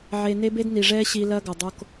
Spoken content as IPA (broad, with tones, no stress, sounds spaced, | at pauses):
ʕ e˨ n e˦ b e˦ d n i˨ ʐ ɛː˦ ɕ i˨ l ɐː˦ ɡ ɐ˨ dˤ o˦ k